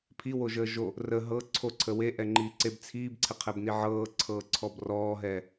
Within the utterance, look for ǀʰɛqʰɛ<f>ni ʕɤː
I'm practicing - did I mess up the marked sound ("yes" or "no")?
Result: yes